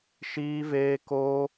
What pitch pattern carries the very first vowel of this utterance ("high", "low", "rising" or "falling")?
high